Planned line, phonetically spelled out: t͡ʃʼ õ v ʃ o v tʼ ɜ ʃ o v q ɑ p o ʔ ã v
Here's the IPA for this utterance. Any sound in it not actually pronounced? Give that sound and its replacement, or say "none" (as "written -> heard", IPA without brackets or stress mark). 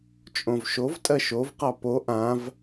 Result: none